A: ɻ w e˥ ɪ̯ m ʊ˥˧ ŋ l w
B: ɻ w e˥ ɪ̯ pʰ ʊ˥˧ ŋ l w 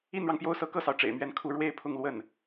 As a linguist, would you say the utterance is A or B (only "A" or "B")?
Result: B